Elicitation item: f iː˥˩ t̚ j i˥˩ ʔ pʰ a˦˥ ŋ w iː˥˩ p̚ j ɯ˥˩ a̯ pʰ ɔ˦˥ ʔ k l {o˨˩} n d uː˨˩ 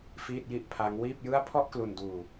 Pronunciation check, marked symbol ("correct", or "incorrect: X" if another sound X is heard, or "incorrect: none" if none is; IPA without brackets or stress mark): incorrect: u˨˩